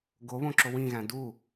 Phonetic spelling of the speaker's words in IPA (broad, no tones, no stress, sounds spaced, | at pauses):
ɡ o β õ ǁ o w ĩ ɣ æ̃ d u